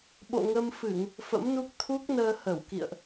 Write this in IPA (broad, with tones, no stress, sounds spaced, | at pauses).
ɓ o̰˧˨ ŋ ə˧ m f ɨ˧˩˨ ŋ | f ə̰˧˥ m n u˦˥ k̚ t̪ʰ u˦˥ k̚ n əː˧ h ə˧˩ w k ḭ˧˨ ə̯ ʔ